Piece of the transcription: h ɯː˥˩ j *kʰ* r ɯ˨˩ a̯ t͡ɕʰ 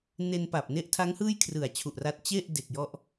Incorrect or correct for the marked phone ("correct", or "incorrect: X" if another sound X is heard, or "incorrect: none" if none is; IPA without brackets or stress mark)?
correct